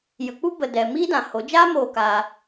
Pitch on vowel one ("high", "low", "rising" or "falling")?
low